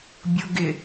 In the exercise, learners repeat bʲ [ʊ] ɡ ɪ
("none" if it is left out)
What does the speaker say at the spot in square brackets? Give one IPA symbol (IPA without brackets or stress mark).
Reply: ʊ